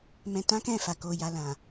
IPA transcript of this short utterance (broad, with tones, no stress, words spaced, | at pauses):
mɛ̃˧tã˦kɛ̃˦˨fa˨ ko˨ja˨ lã˨